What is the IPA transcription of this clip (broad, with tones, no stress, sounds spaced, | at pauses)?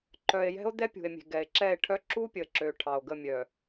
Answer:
ǃ œ˨ e̯ j ɛ̤˦ o̯ d̪ ɛ˦ pʲ ṳ˨ e̯ mʲ e̤˨ ɡ ɛ˨ e̯ ǁ ɛ˦˨ e̯ ʈʰ œ˦ ǁ u˦ pʲ ə˨ ǁ ø˨ ʈʰ ɑ˨ o̯ ɡ ə˦˨ mʲ œ˨